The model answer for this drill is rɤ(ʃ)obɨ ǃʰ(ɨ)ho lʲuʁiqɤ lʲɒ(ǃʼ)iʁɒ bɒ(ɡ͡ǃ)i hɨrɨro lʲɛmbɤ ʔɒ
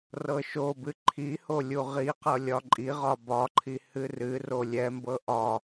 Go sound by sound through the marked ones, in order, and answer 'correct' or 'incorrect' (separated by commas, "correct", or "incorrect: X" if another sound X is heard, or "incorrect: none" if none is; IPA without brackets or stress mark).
correct, incorrect: i, correct, incorrect: ǃʰ